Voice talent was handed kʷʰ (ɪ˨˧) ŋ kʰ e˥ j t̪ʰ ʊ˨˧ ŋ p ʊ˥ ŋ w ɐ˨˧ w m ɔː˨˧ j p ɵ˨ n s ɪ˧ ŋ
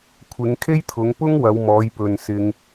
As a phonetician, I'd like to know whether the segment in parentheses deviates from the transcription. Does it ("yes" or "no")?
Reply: no